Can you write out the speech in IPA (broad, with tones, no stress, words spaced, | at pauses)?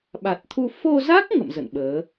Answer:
ɓa˨˩t̚t̪ʰu˧ fo˧za˦˥k̚ ŋə̰˧˨m zə̰˧˨nɓəː˨˦